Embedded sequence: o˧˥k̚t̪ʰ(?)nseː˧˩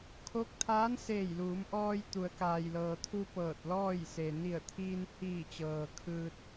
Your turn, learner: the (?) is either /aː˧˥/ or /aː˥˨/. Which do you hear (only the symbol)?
aː˧˥